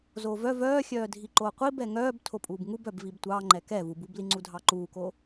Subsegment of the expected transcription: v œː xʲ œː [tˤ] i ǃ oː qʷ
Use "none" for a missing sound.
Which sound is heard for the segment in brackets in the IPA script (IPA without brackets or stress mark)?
dʱ